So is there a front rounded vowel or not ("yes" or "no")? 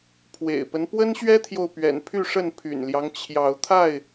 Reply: yes